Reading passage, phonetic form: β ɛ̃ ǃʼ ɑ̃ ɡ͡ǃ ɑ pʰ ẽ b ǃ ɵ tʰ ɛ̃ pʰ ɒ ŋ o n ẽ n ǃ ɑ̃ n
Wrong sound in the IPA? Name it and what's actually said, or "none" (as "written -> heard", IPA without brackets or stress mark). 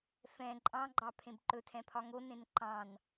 β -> f